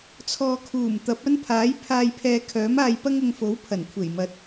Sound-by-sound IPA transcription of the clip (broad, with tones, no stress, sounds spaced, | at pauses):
t͡sʰ ɔː˨ kʰ uː˨˩ m t̪ ɐ˨˥ p̚ ɐ˥ n pʰ aː˨˥ j pʰ aː˧ j pʰ ɛː˧ kʰ œː˨˥ m aː˧ j p ɐ˥ ŋ ʊ˧ ŋ f o˨˥ w pʰ ɐ˨˩ n kʷʰ e˨˩ j m ɐ˨˥ t̚